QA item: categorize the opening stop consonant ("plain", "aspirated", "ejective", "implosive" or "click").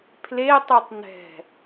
aspirated